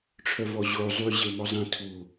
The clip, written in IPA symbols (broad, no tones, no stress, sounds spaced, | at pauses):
ʈ͡ʂʰ œ v ɔ ʑ o zˤ y ʑ e m ɔ zˤ ẽ tʰ u